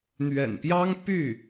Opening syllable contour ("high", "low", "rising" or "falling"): low